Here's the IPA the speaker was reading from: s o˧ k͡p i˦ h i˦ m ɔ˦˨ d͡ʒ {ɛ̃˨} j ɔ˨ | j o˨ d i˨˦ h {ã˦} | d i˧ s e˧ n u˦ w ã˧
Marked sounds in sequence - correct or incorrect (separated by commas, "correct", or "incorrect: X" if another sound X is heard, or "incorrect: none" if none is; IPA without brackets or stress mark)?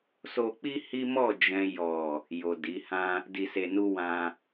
correct, correct